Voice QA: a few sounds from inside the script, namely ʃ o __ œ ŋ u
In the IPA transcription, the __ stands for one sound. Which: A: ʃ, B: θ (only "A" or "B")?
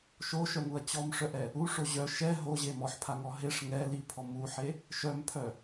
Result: A